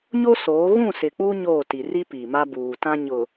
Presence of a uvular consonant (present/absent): absent